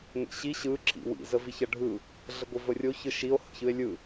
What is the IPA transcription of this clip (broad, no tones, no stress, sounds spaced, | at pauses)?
ŋʷ ḭ ɕ i ɕ ɯ ǁ ḭ w ḭ z ə v i ç ɐ ɖʱ ɯ | ɮ ə ɡʷ i v ə rʲ o ç ɯ ʃ i o̯ h ə̰ ç ɯ e̯ lʲ ɯ